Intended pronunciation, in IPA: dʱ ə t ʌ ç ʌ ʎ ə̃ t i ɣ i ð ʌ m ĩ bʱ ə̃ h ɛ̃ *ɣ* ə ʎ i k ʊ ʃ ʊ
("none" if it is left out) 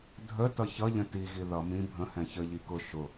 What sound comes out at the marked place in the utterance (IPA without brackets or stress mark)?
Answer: ç